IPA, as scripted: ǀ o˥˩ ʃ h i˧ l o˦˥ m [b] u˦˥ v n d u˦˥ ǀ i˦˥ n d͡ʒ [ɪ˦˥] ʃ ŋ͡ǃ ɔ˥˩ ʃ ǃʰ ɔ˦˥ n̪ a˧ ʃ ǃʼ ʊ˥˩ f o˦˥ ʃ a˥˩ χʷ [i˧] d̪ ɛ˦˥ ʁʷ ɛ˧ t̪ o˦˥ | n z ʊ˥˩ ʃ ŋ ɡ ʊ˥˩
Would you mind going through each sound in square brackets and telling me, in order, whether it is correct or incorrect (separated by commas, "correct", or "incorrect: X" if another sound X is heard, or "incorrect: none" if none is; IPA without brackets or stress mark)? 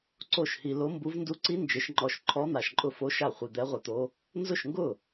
correct, correct, correct